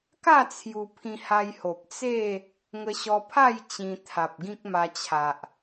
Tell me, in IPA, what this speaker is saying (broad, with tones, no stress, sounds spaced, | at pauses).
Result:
k a˥˧ t͡sʰ j u˧ pʰ ĩ˧ h a˧ j h o˨ p̚ t͡s e˥˧ | ŋ ə˧ ɕ ɔ˧ pʰ a˥˧ j t͡ɕ ĩ˧ t̪ʰ a˨ p̚ ɡ ĩ˦ k̚ m a˧ t͡ɕʰ a˨ ʔ